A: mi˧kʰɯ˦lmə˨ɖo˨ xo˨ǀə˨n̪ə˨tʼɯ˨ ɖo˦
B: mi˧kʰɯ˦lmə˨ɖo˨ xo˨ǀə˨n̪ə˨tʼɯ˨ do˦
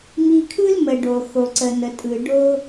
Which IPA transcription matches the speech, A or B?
A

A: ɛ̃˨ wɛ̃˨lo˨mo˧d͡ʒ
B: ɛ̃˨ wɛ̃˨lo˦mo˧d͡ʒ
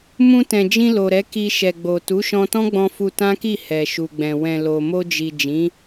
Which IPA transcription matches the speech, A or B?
A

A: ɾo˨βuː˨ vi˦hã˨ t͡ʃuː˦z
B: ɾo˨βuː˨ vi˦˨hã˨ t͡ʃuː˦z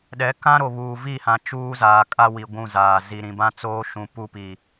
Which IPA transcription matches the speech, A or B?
B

